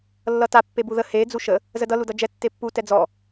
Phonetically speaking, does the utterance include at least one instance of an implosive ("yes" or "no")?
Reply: no